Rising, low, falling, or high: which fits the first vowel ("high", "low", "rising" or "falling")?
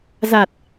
low